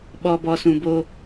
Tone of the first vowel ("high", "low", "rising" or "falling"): low